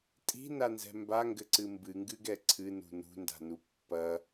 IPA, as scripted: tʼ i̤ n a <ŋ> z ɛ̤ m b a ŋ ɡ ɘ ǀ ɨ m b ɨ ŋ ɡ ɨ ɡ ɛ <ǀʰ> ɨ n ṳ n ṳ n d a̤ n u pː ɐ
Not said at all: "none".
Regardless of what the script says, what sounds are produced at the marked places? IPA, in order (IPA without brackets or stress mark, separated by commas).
n, ǀʰ